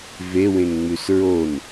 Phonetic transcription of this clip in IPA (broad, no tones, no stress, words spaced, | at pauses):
vewẽŋŋ͡mʉs ɹon